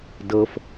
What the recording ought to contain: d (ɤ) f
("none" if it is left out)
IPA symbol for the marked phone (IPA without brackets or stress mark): ɤ